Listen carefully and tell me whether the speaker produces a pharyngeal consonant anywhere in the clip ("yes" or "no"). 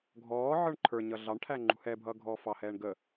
yes